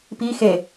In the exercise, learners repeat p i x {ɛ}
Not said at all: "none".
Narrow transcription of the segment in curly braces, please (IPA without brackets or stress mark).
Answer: e